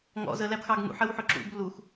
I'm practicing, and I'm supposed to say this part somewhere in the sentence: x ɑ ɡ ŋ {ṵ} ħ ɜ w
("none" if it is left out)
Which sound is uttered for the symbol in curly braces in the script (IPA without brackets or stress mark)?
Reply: ṵ